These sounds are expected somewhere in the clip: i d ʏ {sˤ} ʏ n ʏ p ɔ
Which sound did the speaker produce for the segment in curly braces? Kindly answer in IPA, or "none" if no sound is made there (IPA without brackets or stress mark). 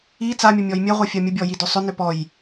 sˤ